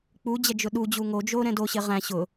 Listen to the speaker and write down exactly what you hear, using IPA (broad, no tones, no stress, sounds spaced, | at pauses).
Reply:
k͡p u d͡ʑ ɛ d͡ʒ ʊ ɗ u d͡ʑ u ŋ o d͡ʒ o ɾ ɛ̃ d o ɕ ɪ ʁ æ̃ ɕ ʊ